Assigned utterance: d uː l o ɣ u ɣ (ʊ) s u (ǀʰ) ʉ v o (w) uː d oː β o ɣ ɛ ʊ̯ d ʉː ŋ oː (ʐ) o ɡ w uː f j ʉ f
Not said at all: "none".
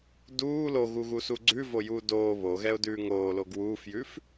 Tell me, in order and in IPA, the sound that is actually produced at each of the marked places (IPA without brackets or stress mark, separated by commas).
u, ɡ͡ǀ, j, l